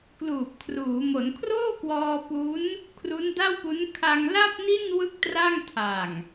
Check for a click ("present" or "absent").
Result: absent